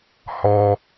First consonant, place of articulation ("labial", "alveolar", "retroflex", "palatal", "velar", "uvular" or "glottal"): glottal